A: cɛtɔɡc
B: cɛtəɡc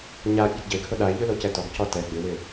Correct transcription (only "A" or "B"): A